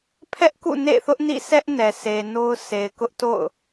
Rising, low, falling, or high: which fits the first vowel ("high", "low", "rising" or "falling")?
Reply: high